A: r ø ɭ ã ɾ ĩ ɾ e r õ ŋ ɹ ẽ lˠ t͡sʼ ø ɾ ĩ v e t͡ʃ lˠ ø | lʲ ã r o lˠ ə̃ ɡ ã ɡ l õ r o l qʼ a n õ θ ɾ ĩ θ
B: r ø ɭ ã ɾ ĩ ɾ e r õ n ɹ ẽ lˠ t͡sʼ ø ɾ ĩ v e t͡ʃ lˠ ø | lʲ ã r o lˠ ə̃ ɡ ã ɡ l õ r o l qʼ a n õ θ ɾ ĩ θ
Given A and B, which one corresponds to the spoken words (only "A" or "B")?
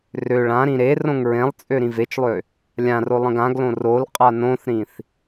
A